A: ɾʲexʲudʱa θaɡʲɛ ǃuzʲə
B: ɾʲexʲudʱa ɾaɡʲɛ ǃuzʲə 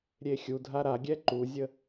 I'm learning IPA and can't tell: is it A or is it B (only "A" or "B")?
B